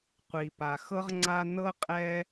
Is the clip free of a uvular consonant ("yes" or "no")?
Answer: no